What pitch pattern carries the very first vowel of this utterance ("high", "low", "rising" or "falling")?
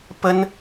high